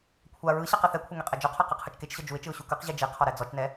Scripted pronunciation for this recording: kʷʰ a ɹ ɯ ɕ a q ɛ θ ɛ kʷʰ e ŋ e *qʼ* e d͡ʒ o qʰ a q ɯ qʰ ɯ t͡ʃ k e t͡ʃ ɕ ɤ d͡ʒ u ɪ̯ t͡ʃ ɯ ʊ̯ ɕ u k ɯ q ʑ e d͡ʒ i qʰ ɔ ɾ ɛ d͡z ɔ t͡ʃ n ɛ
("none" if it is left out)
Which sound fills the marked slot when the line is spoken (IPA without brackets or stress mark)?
qʼ